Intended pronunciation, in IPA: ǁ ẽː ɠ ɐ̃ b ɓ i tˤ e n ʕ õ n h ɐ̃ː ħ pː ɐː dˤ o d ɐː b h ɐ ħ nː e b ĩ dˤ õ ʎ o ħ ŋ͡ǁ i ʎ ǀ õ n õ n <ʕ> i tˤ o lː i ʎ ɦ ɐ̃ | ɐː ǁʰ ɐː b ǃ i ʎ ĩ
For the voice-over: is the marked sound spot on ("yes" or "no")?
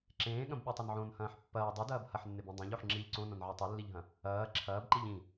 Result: yes